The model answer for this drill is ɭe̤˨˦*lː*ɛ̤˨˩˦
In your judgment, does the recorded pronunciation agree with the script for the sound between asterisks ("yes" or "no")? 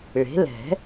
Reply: no